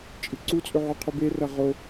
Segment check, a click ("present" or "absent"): present